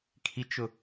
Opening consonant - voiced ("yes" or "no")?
no